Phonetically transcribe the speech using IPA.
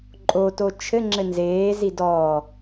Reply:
ǃʼ o t o t͡ʃʰ ɘ ŋ͡ǁ ɘ n z eː z i d ɔ

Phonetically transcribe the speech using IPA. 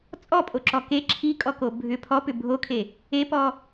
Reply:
t͡sʼ ɔ pʼ o ǁ ɔ k e ǁʰ i kʼ ɔ k o bʱ ʏ pʰ ɔ p ʏ bʱ o kʰ e | e p ɔ

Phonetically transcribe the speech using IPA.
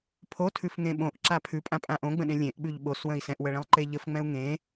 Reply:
pʰ o tʰ ʉ f ŋ ẽ ɓ õ ʔ ǁ a pʰ ʉ pʼ ã pʼ ã ʔ õ ɡ͡b ə̃ ɗ ẽ lʲ ẽ ʔ ɓ ʉ ʎ ɓ o s w ə̃ i̯ s ɛ̃ ʔ w ə ɭ ẽ lˠ ǃ e ʎ ə f ŋ͡m ɛ̃ u̯ ŋ ẽ

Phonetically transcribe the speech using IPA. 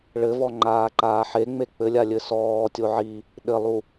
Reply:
ɭ ɘ v ɔ ŋ͡ǃ aː ǃ aː ħ e ŋ͡m e k͡p ɘ lʲ a lʲ ɘ s ɔː tʲ o ʕ i | ɗ ɘ lˠ u

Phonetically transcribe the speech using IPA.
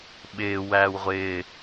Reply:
ɓ ɪː w æː w ʁʷ ɪː

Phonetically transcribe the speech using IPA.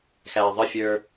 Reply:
x æ ðˤ ə fʲ ə˞

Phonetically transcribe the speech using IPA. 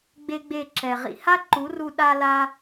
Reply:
ɡ͡b e˦ ɡ͡b e˦˨ ǁ ɛ˨ ʁ ḭ˨ h a˦ ǃ u˨˦ r u˧ ɗ a˧ l a˧

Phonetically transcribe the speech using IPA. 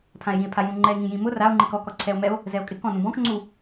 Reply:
pʰ ã e̯ j ĩ e̯ pʰ a j ũ ŋ͡ǃ ɛ e̯ ŋ ĩ j ĩ m ʊ r a o̯ ŋ͡ǃ i k ɔ k ɔ ǀʰ ɛ o̯ m ɛ o̯ | z ɛ o̯ kʼ ɪ k ɔ̃ n ũ b ɔ̃ k ŋ͡ǀ u

